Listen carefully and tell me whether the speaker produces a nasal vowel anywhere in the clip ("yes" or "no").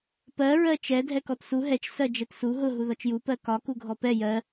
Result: no